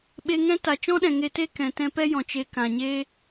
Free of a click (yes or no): yes